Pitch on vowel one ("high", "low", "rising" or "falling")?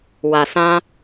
low